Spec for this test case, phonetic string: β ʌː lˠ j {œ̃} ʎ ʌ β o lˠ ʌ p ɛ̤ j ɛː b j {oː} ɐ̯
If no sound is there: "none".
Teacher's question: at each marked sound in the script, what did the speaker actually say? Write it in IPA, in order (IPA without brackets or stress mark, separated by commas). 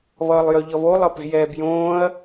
œ, õː